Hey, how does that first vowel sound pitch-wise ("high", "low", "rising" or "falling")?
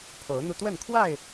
rising